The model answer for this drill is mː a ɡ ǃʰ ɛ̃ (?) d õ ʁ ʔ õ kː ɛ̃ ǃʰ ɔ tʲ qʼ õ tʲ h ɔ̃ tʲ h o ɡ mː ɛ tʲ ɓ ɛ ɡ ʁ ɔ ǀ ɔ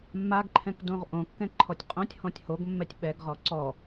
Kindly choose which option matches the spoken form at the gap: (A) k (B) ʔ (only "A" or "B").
A